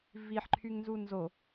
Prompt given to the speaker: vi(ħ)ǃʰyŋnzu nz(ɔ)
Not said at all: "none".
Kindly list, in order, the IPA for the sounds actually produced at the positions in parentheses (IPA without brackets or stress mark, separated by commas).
ħ, o